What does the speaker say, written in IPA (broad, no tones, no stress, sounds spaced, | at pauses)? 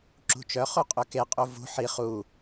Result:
ǁ ṳ t͡ʃ œ χ u qʼ ø k e qʼ u v ṳ ħ i χ u